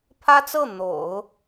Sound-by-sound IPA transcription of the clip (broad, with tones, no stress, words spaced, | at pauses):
pʰä˥t͡sɤ˥˩ n̪o̰˨˩˦ʊ̯